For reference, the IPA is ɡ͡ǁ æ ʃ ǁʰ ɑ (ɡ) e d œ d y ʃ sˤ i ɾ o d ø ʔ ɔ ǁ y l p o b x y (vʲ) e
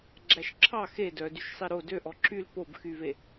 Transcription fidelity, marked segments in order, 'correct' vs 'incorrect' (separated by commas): incorrect, incorrect